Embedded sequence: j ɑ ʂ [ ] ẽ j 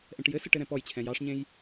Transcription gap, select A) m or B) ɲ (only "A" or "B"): B